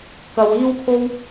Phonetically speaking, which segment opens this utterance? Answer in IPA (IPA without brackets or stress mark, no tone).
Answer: k